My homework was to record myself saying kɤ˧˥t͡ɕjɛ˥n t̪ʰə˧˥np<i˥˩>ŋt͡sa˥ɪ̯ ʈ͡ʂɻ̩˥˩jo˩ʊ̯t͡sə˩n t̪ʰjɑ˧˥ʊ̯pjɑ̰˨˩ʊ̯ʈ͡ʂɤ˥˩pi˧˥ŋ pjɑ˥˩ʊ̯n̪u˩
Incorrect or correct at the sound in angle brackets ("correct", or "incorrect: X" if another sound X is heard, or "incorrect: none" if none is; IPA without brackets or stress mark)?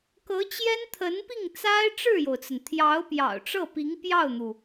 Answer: correct